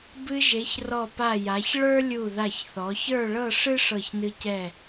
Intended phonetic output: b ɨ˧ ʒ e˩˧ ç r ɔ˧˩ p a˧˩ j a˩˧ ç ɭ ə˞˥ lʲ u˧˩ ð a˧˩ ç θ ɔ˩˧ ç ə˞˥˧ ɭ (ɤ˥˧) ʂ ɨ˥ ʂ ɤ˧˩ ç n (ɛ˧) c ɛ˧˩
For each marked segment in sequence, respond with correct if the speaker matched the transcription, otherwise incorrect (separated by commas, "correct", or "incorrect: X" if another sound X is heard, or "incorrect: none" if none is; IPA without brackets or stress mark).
correct, incorrect: ɨ˧